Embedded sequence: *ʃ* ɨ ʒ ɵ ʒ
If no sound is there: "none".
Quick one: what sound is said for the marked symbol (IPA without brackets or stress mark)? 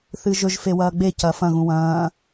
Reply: θ